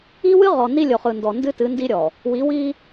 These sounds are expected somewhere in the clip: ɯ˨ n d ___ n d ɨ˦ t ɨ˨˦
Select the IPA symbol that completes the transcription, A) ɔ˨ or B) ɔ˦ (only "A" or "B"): A